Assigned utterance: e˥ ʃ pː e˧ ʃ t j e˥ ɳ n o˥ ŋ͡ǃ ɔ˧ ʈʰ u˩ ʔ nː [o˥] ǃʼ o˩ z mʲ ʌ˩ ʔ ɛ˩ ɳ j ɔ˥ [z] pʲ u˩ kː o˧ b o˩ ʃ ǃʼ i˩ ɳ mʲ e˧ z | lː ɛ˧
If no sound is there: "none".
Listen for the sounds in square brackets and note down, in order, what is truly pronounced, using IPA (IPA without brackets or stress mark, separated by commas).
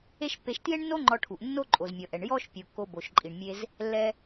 o˥, ʃ